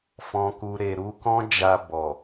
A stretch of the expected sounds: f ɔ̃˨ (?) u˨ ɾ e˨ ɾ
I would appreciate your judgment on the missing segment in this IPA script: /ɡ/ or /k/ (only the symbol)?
k